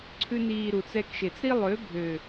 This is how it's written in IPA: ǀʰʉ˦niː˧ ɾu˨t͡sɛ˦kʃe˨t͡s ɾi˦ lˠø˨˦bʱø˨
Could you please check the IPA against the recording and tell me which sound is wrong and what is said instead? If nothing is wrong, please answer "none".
none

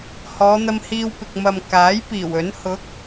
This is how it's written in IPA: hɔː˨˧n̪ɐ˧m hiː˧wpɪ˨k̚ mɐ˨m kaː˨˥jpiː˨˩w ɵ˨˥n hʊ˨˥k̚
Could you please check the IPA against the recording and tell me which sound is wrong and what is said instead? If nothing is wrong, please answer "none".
none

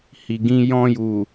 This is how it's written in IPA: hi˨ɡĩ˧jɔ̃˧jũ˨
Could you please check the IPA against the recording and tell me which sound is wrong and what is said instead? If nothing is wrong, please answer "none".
ũ˨ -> u˨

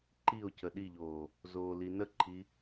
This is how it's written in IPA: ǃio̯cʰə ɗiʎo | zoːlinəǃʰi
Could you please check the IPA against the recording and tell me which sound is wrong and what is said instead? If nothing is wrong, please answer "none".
o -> oː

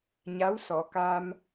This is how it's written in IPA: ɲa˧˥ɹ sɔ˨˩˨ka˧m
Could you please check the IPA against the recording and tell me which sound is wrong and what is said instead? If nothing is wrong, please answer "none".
ɹ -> w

